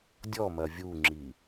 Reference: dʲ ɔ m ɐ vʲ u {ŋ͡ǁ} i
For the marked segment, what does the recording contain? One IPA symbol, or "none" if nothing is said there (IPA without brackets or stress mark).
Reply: ŋ͡ǁ